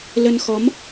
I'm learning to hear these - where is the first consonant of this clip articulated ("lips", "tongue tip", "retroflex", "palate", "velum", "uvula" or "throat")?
tongue tip